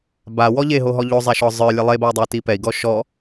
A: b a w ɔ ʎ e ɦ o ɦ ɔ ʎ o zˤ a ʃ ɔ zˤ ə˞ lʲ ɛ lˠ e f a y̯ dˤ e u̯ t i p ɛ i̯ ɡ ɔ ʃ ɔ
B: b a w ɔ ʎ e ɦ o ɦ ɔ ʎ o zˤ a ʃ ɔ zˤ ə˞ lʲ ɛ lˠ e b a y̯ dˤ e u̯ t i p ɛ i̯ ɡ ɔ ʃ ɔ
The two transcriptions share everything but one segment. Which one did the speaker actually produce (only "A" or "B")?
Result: B